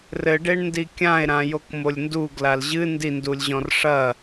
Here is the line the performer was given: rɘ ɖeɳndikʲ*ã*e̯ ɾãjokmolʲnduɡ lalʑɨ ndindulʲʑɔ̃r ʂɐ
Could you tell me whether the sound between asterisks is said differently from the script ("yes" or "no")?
no